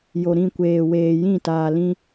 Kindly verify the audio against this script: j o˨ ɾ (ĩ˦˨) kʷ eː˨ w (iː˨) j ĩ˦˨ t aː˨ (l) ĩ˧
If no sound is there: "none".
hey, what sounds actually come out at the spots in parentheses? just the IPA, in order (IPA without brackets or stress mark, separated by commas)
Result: ĩ˦˨, eː˨, l